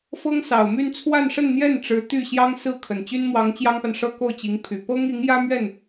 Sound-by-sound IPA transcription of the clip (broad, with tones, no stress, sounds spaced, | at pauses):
f ɤ˥ ŋ s ɑ˨˩ ʊ̯ m y˥˧ n t͡sʰ w a˥˧ n ʂ ə˥˧ n n̪ j ɛ˥˩ n ʈ͡ʂ ɻ̩˧˥ t̪ y˥˩ ɕ j ɑ˥ ŋ s ɹ̩˥˩ kʰ ə˨˩ n t͡ɕ y˥ n m w ɑ˧˥ ŋ t͡ɕ j ɑ˥ ŋ p a˨ n ʂ ɤ˥ k o˥˩ ʊ̯ t͡ɕ i˧˥ ŋ pʰ y˨˩ p ɤ˥ ŋ i˧˥ ŋ j ä˥ m ɥ ɛ˥˩ n